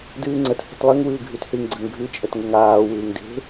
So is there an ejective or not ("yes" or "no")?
yes